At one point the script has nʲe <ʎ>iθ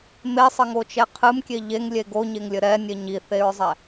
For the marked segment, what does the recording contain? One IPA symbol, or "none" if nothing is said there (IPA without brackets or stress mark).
ɲ